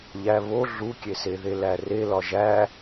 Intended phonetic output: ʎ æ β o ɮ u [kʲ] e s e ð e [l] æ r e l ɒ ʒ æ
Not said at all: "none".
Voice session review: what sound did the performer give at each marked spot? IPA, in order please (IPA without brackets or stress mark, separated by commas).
kʲ, l